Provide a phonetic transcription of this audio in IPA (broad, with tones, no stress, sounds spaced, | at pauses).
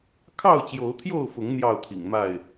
kʰ ɑ˥˨ ʊ̯ t͡ɕ j o˨˦ ʊ̯ t̪ʰ j o˥˨ ʊ̯ f ʊ˨˦ ŋ n̪ j ɑ˥˨ ʊ̯ t̪ʰ ḭ˨˩ ŋ m a˥˨ ɪ̯